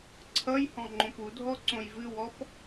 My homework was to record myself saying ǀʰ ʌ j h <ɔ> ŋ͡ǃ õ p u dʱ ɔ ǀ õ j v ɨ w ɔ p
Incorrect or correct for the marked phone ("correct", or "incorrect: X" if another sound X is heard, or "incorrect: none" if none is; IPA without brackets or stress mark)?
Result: incorrect: ɔ̃